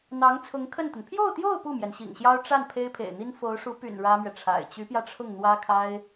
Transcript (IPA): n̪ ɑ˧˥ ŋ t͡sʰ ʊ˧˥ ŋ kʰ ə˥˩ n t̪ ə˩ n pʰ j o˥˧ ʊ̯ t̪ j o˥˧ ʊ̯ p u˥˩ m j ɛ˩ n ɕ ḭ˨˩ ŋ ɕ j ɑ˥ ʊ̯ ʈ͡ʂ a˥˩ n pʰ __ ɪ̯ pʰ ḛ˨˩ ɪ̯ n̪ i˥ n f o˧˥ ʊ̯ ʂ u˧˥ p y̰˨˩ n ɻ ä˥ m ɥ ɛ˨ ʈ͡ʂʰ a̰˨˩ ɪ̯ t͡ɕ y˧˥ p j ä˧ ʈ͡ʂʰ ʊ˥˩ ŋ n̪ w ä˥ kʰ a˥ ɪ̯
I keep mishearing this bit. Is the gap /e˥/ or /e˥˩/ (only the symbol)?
e˥